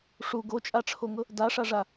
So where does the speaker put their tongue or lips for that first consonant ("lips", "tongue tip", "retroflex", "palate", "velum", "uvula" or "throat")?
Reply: retroflex